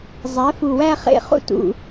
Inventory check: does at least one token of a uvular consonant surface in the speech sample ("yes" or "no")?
yes